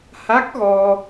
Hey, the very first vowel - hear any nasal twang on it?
no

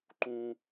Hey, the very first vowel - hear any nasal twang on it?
yes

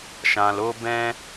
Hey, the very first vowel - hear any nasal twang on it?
yes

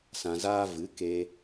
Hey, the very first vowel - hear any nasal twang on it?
yes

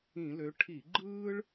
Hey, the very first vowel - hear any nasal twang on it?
yes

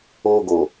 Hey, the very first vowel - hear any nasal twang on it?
no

